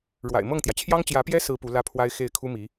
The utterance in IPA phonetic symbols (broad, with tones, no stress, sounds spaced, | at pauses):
ɻ w a̰˨˩ ɪ̯ m ɤ˥˩ ŋ t̪ j ä˩ t͡ɕʰ j ɑ˥ ŋ t͡ɕ j ä˧˥ p j ɛ˥ s ɹ̩˥ p u˧˥ l ä˥ pʰ w a˥ ɪ̯ x e˥˩ ɪ̯ kʰ u˥ m i˧˥